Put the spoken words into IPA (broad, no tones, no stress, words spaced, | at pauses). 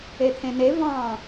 et̪ʰẽne vɑ̃